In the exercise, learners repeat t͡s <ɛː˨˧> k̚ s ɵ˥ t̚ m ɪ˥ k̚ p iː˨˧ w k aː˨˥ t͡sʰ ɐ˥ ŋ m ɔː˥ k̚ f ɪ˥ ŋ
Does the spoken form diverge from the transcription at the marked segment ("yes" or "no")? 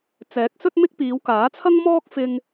yes